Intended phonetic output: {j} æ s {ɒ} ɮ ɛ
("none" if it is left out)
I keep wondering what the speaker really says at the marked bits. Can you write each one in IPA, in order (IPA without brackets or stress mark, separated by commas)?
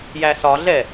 j, ɒ